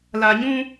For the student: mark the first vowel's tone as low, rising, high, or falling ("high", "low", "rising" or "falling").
low